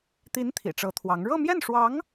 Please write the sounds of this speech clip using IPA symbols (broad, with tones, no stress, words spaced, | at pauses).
t̪i˧˥n t̪ʰḭ˨˩ʈ͡ʂɤ˧˥t̪ʰwɑ˧˥ŋ ɻɤ˥˧mjɛ˥˩nʂwɑ˧˥ŋ